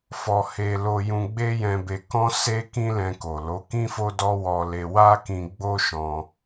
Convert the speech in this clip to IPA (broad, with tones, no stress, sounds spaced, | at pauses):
f ɔ˧ h e˧ l o˧ j ũ˧ ɡ͡b e˦ j ɛ̃˧ b e˧ k ɔ̃˦ s e˦ k ĩ˦ l ɛ̃˧ k o˨ l o˨˦ k ĩ˦ f o˦ d ɔ˦ w ɔ˧ l e˧ w a˦ k ĩ˧ ɡ͡b o˦ ʃ ɔ̃˧